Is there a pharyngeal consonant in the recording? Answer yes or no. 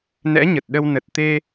no